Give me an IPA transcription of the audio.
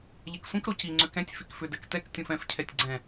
ʎ ɛ k sʷ ĩ k ɾ o c i ŋ͡ǀ ʏ k ɛ̃ tʲ f i k f ʏ d ɛ k t ɛ k tʲ õ f ɛ̃ f cʰ ɛ tʲ ɡ͡ǀ ɛ̃

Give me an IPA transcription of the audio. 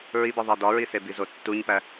ɹ i b i ðˤ æ d ɒ ɹ i s e b i z o tː u ɲ p æ

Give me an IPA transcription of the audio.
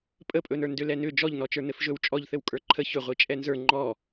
pʼ ə pʼ ɵ n ə˞ n d ʏ l ɛ n ʏ d͡ʒ ɔ ʎ n ɔ t͡ʃ ə˞ n ɘ f ʒ ɵ w t͡ʃʼ ɔ ʎ θ ɘ w kʼ ə˞ ǃʰ ə ç ʏ ʁʷ i t͡ʃʼ ɛ n z ə˞ ŋ͡ǃ ɔ

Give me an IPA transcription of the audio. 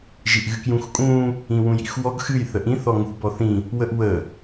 ʒ i ʔ ɣ ɨ k j ũ x kʼ ũ | ĩ w ũ j ḭ x w ɔ ɡ x ɨ j θ ə ʔ ĩ θ ɔ ŋ ṳ b ɔ θ ĩ | w ə ʔ w ə

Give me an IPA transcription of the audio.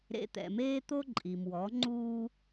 ɾ ḛ˧ t̪ ɛ̰˨ m eː˦ t̪ o˦ ǃʼ i˨ m w ɔ˨˦ ŋ͡ǃ uː˦

